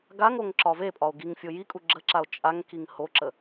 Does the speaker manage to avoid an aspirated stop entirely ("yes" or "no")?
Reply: yes